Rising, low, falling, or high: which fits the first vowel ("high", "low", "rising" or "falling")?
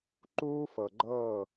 high